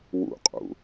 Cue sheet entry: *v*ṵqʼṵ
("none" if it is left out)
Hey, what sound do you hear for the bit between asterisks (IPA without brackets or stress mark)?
w